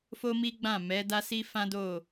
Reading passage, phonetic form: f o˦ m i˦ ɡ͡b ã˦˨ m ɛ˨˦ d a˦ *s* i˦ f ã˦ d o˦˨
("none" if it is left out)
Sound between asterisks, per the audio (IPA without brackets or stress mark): s